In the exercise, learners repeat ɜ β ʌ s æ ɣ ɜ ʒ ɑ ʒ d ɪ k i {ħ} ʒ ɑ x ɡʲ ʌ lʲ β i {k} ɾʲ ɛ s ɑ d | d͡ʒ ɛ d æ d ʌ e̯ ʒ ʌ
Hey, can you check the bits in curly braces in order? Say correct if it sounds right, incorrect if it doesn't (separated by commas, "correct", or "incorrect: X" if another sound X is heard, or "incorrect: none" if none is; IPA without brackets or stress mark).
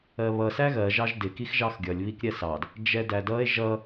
incorrect: x, correct